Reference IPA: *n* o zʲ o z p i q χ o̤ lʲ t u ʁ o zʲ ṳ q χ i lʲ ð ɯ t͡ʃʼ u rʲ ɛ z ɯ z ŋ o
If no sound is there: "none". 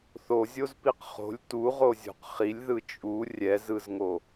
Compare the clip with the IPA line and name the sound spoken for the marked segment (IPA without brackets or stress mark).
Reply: θ